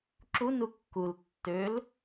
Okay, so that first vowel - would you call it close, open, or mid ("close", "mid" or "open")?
close